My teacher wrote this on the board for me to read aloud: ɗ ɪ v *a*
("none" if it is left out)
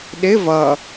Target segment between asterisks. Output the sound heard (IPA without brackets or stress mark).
ʌ